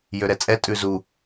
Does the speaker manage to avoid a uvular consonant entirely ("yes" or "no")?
yes